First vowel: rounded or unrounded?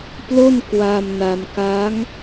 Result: rounded